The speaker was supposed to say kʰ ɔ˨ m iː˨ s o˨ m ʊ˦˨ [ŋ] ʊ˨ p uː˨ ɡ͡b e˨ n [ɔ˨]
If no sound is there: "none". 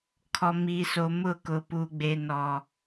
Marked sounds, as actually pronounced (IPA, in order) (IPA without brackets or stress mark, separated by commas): k, ɔ˨